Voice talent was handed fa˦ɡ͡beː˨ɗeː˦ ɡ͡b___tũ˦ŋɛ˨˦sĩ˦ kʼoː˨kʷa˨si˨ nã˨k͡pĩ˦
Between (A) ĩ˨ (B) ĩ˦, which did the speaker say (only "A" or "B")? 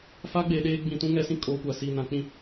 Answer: A